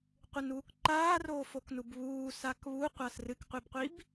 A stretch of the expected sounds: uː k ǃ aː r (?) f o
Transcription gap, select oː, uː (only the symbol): oː